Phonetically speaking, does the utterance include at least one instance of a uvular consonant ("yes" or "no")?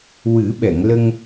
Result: no